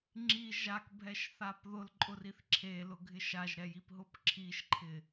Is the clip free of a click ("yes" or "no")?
no